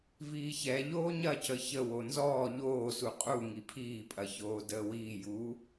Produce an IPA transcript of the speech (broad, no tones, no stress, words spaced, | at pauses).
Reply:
viːçɛʎoː ɲɐcə çə wonzɔː ʎoːsu qʼu ŋipʰiːpʼɐçoː dəːwiːjuː